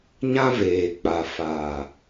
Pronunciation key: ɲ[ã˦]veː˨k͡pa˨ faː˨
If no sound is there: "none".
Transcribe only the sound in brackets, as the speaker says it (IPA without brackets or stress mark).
ã˦